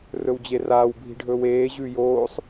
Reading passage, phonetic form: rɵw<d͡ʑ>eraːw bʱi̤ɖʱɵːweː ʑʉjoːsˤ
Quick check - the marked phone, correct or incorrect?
correct